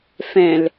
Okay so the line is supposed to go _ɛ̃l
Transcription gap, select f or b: f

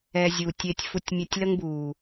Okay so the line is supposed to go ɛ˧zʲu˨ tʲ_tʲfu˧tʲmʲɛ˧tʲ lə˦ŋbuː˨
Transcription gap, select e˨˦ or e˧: e˧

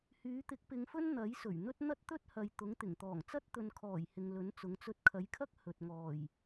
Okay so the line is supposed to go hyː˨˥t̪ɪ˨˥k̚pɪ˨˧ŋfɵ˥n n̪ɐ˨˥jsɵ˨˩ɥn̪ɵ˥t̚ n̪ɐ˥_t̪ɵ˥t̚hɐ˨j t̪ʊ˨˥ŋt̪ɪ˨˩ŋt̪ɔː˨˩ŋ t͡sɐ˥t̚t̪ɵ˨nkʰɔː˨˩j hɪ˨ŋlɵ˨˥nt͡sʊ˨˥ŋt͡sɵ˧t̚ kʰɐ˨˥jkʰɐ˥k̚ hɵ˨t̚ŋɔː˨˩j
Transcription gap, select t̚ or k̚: t̚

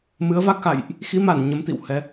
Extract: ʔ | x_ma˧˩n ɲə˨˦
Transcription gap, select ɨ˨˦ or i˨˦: i˨˦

